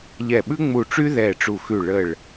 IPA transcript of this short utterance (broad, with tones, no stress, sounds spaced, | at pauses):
ʎ ɛ˧˩ ɓ ʉ˦ ŋ͡m u˧˩ ʈ͡ʂ y˦ ð ɛ˧˩ ʈ͡ʂ u˧˩ x ʉ˧˩ ɭ ə˧˩ ɭ